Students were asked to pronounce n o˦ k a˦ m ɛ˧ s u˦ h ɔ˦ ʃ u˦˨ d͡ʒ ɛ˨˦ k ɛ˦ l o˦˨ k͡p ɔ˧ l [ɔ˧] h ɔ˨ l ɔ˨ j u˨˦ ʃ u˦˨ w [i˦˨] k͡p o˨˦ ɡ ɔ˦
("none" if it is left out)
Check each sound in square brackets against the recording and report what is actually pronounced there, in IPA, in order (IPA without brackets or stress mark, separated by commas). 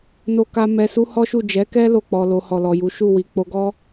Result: o˧, i˨